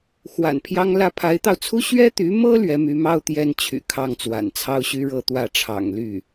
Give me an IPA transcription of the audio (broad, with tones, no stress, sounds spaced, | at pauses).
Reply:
x w a̰˨˩ n pʰ j ɑ˥ ŋ l ä˥ pʰ a˧˥ ɪ̯ t̪ ɑ˧ ʊ̯ t͡sʰ u˥ ɕ ɥ ɛ˥ t̪ y˧˥ m ɤ˥ l ɥ ɛ˧˥ m y˧˥ m ɑ˥ ʊ̯ t̪ j ɛ˥ n t͡ɕʰ y̰˨˩ kʰ ɑ˥˩ ŋ t͡s w a̰˨˩ n t͡sʰ ɑ˥ ʊ̯ ɕ y˥ ɻ ɤ˥˧ t̪ w ä˥˩ ʈ͡ʂʰ ɑ̰˨˩ ŋ l y˥˩